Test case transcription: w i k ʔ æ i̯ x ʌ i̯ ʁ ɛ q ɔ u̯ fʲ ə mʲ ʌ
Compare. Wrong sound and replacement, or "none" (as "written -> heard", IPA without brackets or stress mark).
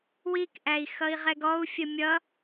q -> ɡ